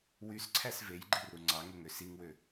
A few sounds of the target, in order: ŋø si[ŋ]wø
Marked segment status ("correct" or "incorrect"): correct